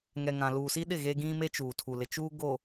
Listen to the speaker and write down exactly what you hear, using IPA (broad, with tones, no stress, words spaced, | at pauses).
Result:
ŋɛ˨ŋã˨ luː˨si˦ɗɪ˦˨ ɣe˦ ɡĩ˦me˦ t͡ʃuː˨tʰu˨ lɪ˨t͡ʃuː˦ ɡo˨